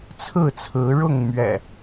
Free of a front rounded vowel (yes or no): yes